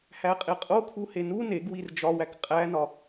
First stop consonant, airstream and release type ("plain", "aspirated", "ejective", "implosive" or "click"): ejective